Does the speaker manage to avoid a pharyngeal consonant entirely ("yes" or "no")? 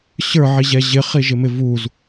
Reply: no